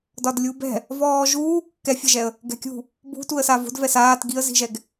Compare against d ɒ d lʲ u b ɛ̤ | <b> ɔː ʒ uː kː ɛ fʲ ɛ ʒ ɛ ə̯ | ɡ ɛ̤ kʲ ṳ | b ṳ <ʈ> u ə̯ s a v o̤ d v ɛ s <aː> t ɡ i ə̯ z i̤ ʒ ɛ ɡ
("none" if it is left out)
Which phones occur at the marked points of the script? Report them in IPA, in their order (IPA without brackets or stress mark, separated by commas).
v, t, aː